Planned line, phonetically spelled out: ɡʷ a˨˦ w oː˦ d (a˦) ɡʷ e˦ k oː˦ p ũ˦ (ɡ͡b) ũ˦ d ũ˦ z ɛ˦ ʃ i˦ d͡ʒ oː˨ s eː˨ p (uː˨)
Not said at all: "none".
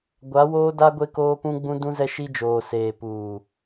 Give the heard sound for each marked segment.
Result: a˦, ɡ͡b, uː˨

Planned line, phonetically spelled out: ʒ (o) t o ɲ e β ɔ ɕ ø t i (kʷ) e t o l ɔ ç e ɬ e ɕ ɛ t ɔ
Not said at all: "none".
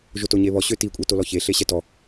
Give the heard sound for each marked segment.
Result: o, kʷʼ

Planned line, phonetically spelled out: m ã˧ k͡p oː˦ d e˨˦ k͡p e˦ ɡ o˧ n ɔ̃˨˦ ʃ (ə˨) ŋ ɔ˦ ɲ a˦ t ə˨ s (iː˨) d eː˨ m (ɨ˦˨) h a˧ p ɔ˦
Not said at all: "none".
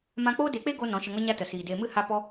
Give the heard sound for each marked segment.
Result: ə˧, iː˨, ɨ˦˨

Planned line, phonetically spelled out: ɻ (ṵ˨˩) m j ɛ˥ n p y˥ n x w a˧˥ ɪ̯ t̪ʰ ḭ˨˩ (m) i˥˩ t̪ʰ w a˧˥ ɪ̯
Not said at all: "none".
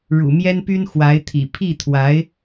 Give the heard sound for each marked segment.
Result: ṵ˨˩, pʰ

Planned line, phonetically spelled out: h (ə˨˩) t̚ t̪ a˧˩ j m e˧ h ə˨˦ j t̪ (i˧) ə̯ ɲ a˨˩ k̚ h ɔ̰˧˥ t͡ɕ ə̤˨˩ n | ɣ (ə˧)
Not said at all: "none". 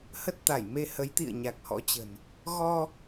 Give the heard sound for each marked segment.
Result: ə˦˥, ḭ˧˨, ɔ˧

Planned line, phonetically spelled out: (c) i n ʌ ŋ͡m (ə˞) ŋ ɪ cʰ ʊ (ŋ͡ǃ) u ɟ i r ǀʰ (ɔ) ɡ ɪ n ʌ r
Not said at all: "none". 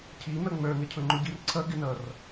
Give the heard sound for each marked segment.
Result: cʰ, ə˞, ŋ͡ǃ, ʌ

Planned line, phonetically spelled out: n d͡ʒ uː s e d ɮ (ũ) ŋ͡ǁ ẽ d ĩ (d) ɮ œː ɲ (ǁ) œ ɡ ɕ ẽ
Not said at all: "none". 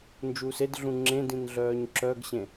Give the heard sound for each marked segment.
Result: ũ, n, ǁ

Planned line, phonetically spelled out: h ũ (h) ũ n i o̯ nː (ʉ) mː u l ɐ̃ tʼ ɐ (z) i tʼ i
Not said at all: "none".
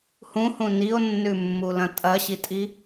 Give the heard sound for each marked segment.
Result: h, ʉ, ɕ

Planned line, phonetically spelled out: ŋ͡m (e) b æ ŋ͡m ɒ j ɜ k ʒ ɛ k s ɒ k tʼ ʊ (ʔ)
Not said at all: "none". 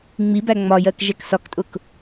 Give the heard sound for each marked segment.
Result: i, k

